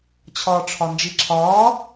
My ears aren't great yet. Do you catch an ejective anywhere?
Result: no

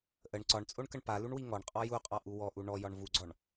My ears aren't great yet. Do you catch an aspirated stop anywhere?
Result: no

